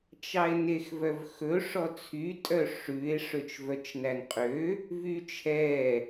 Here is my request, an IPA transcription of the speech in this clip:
t͡ʃ ɑ e̯ n e x v œ v x ɵ ʂ ɔ t͡sʰ y tʼ œ ʂ ʉ e̯ ʂ ø t͡ʃ v œ t͡ʃ n æ n qʼ ø | v y t͡ʃʰ ɛ

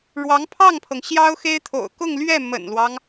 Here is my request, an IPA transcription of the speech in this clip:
ɻ w ɑ˧˥ ŋ pʰ ɑ˥˩ ŋ pʰ ɤ˩ ŋ ɕ j ɑ˥ ʊ̯ x e˥ ɪ̯ t̪ʰ o̰˨˩ ʊ̯ k ʊ˥˧ ŋ l ɥ ɛ˥˩ m ə̰˨˩ n l w ɑ˦ ŋ

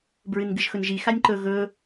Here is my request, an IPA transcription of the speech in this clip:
b ɹ ɨ n ɡ ɨ ʒ x ɵ n ʒ i x a nʲ ǃ ɵ ɣ ɵ

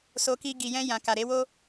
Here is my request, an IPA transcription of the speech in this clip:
s o˧ k i˧ ɡ i˨ j ɛ̃˧ j ã˨ k a˨ ɾ e˨˦ w o˦

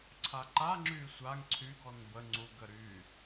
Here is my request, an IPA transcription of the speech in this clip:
ǀʰ a ǃ a ŋ͡ǁ y sʷ a ŋ ǀʰ y ɡ ɔ n b ə ŋ͡ǀ u ɡ ə ɾ y

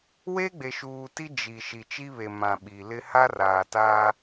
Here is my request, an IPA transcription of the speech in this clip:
w e˦ ɡ͡b e˨ ʃ uː˨ t i˦ d͡ʒ i˨ ʃ i˨ t͡ʃ i˦ β e˨ m ã˨ ɓ i˨ l ɪ˦ h a˦ r aː˨ t aː˦

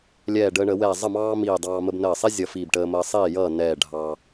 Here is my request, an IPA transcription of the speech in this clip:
lʲ ɛː˧˩ ɖ əː˧ ɳ ə˧˩˧ w ɛː˧˩ zˤ ə˥˨ m ɑː˥ m iː˧˩ dˤ ɑː˧ m ə˧ b n əː˧˩ sˤ i˥ zʲ ʌ˧˩ f iː˧˩ b ʈ əː˧ m əː˧ sˤ iː˥˨ j ʌː˥˨ n ɛː˥˨ ɖʱ ɑ˧

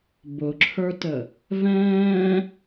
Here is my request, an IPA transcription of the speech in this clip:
b ʊ ǁʰ ə˞ t ə | v ɛ̃ː

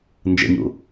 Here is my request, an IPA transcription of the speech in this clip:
n d͡ʒ ə̰ ɲ ṵ

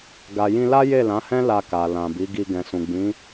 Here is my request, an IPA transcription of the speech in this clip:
ɡ a˨ j ĩ˧ l a˦ j e˦˨ l ã˨˦ h ɛ̃˦ l a˧ k a˨ l ã˨ b i˨˦ ɡ i˧ ɡ ɛ̃˨ s ũ˨ ɡ͡b ĩ˨˦

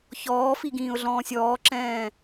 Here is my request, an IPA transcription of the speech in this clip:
ç ɔː f i ɡ ĩː ʊ̯ ɮ ɔ̃ː sʲ ɔː ǁ ɛ̃ː

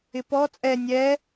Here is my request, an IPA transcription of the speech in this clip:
ɪ p ɔ t͡sʼ ɛ nʲ ɛ

